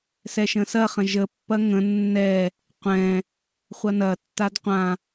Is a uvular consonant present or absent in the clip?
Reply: present